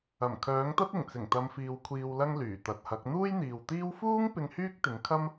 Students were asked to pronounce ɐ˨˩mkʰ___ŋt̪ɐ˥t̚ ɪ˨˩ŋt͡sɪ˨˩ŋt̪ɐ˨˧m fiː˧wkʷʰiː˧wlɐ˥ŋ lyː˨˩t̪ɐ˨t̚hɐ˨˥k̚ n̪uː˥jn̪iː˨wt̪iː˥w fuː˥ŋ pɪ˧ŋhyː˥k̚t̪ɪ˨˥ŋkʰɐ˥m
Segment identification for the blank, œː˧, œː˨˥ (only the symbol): œː˨˥